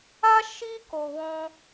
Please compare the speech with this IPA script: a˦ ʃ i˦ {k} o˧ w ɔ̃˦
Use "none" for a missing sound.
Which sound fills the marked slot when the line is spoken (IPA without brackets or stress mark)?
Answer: k